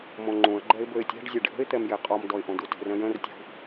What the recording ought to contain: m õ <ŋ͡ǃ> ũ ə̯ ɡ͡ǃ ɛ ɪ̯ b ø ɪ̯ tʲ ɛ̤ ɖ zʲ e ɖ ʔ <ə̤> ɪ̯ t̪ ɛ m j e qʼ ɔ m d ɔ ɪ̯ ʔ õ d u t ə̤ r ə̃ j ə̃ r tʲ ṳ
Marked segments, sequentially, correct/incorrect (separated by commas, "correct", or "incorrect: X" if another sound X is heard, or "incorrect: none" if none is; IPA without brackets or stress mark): correct, correct